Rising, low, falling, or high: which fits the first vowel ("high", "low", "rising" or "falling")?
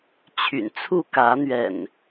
low